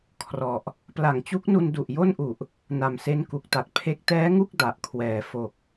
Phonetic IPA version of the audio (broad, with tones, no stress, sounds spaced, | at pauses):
kʰ r ɔ˨˩ ʔ | p l a˨˩ ŋ t͡ɕ u˦˥ k̚ n u˧ n d u˨˩ ʔ j o˥˩ n ʔ u˨˩ ʔ | n a˨˩ m s e˦˥ n k u˨˩ k̚ t a˨˩ t̚ pʰ e˦˥ k̚ t ɛː˦˥ ŋ u˥˩ k̚ d a˨˩ ʔ kʰ w ɛː˨˩ f o˨˩ k̚